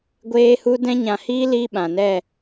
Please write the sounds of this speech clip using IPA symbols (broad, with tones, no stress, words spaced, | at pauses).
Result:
ɡʷeː˦hu˦ dɛ̃˦ɲã˧hiː˦ liː˦ɓã˨nɛ˦˨